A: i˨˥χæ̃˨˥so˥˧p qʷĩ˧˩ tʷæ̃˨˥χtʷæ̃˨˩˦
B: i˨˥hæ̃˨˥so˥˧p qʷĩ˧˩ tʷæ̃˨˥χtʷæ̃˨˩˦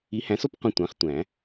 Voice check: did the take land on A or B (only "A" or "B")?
B